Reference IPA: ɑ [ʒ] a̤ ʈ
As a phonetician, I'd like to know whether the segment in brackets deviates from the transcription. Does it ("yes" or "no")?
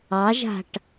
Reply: no